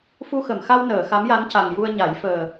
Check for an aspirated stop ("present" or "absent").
absent